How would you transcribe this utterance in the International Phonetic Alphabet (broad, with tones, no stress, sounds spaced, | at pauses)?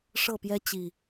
ʂ ɤ˥˨ p j ɛ˦ t͡ɕ i˨˩